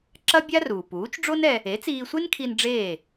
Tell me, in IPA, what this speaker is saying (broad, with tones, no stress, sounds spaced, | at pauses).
ǁ ɐ˥ bʲ a˥ r uː˩ p uː˩˥ t͡ʃ ɖ͡ʐ o˥ n ɛ˧ | e˩˥ t͡s iː˧ sʷ e˥ n kʰ i˧ n ɖ͡ʐ eː˥˩